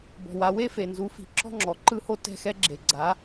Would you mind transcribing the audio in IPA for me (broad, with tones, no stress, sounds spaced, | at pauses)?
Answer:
b ɔ̤˩ w a˩˥ w e˥ f e˩ n z u˩˥ f i̤˩˥ ǁ ɔ̤˥ ŋ͡ǁ ɔ˩ ǃ ɯ˥ h o˥ t ɛ̤˥˩ x ɛ˥ ɡ͡ǁ e˩ ɡ͡ǀ a˩˥